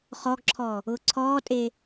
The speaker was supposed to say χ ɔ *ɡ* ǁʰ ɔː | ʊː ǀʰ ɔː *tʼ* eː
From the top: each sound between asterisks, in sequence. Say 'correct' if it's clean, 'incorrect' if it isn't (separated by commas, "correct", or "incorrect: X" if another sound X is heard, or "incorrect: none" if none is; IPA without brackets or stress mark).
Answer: correct, correct